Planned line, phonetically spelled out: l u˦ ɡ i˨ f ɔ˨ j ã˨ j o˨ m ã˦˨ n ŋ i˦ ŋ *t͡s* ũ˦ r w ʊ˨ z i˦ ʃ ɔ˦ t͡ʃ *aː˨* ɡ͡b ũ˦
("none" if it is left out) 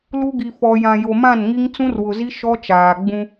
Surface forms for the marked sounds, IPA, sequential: t͡s, aː˨

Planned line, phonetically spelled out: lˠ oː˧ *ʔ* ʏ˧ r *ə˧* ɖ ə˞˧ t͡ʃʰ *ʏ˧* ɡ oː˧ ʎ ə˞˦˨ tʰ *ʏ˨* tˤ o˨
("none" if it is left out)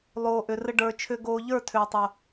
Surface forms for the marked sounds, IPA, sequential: ʔ, ə˧, ʏ˧, ʏː˨

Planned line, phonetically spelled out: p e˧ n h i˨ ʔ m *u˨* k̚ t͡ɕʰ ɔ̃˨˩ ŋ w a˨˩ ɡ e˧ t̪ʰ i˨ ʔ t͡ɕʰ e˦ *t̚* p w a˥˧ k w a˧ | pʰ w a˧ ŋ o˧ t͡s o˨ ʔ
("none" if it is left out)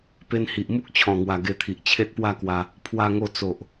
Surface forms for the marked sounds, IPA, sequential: u˦, t̚

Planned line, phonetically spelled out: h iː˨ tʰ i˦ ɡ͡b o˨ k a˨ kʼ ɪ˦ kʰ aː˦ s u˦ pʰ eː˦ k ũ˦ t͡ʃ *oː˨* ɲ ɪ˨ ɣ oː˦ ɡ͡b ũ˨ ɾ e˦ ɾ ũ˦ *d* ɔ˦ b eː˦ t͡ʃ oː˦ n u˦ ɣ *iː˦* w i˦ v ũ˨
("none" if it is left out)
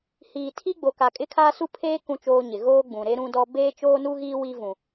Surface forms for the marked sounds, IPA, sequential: oː˦, d, iː˦

